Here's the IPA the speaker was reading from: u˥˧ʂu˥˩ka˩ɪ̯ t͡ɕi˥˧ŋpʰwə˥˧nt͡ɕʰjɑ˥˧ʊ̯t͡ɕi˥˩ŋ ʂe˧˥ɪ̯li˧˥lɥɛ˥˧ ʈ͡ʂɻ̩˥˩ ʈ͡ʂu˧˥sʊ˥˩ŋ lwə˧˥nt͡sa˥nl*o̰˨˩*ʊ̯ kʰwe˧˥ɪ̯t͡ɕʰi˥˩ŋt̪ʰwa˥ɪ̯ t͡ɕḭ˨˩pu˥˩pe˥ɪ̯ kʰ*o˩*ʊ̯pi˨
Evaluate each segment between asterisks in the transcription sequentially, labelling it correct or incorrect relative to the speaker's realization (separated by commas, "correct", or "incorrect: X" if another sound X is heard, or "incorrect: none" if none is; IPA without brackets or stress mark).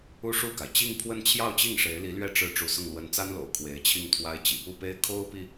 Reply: correct, incorrect: o˥